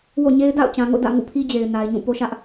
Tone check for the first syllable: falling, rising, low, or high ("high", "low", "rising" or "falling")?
falling